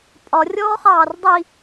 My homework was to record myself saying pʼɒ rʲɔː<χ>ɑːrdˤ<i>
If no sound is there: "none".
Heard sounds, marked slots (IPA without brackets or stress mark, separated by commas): χ, i